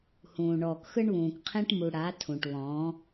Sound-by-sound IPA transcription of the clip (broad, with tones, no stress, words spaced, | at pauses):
hũː˨ɳɔː˨kxɯ˦ɳβũː˨k qʰẽ˦ʈmu˨ ɽa˨˦ tʰũ˨ʈβɔ̃ː˨˦